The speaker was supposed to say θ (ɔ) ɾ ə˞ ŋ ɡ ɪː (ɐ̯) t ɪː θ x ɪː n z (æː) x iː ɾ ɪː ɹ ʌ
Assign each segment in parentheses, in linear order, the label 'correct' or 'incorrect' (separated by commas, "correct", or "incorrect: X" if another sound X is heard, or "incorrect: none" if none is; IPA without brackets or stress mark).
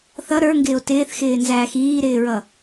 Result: incorrect: ʌ, incorrect: o̯, correct